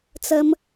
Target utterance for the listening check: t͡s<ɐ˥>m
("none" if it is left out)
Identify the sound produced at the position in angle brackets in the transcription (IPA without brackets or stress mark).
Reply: ɐ˧